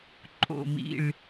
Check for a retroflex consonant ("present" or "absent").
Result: present